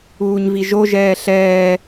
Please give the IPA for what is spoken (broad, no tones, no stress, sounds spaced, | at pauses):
uː ɲ v i ʒ o ʒ ɛː ɬ ɛː